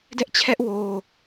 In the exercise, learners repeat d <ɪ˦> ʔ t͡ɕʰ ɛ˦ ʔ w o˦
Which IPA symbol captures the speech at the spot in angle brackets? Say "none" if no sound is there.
ɛ˦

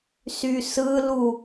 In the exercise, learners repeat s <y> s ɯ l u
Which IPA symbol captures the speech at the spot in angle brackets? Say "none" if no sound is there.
y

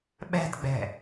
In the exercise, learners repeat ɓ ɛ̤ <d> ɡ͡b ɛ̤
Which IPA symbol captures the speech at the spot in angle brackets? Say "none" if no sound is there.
d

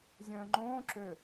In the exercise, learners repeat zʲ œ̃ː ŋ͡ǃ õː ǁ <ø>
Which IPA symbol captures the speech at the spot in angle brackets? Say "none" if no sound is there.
ø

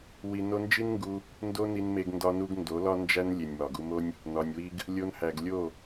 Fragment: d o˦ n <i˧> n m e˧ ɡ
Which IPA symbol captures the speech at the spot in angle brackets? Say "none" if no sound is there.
i˧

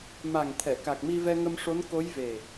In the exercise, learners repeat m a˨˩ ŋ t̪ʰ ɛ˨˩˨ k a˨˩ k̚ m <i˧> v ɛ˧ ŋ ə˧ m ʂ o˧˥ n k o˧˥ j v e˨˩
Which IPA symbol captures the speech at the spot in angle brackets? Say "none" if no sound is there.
i˧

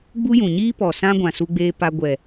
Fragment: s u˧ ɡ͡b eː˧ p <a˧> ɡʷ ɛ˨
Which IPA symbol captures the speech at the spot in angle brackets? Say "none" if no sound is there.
a˧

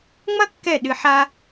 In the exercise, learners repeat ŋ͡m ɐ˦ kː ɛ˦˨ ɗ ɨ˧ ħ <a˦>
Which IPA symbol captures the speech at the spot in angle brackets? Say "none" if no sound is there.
a˦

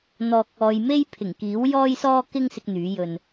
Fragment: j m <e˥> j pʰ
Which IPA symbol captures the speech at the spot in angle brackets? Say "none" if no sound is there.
e˥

